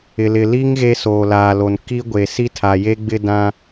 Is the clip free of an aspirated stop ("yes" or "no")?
no